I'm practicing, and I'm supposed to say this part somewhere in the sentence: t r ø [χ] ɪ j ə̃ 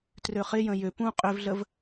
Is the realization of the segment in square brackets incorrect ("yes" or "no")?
no